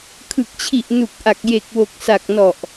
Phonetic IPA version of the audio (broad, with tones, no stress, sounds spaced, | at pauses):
kʰ ɯ˨˩ k̚ t͡ɕʰ i˨˩ ʔ n u˨˩ k̚ ʔ a˨˩ k̚ j e˨˩ k̚ w o˨˩ k̚ s a˨˩ k̚ n ɔ˨˩ ʔ